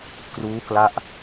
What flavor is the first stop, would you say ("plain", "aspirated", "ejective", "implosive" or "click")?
plain